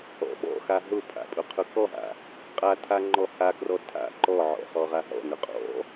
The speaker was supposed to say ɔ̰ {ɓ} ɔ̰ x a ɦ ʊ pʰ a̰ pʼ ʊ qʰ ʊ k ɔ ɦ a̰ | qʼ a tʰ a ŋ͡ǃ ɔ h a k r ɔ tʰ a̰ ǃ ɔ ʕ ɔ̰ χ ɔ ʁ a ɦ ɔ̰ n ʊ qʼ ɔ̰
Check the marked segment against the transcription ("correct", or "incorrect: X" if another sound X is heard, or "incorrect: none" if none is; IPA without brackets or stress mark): correct